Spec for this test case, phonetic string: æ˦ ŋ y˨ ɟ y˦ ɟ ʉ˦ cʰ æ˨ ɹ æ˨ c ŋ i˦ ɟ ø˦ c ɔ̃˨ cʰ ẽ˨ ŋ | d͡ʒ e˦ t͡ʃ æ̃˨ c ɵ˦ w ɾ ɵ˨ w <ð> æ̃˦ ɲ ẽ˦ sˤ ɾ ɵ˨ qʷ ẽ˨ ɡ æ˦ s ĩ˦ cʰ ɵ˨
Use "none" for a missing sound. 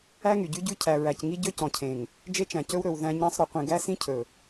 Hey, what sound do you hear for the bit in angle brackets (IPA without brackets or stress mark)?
ð